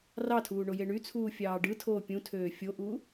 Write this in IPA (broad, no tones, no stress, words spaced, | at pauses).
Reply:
rɑtʰuː ɳojeɳyt͡sʰuː fʲɑːɖɯtʰoː pʲũtʰøː fʲoʔuː